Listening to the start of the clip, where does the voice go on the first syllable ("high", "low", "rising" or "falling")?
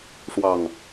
low